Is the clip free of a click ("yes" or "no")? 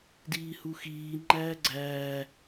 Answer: no